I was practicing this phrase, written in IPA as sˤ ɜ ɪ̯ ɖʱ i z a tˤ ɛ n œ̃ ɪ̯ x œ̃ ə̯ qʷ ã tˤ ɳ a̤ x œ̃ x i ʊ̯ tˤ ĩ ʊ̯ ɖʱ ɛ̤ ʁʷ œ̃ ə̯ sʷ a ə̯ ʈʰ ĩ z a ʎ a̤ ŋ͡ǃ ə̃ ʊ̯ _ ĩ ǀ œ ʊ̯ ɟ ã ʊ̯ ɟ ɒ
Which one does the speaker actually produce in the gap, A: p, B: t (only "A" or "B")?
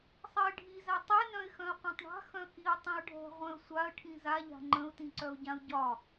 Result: B